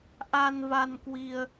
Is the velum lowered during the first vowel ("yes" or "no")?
no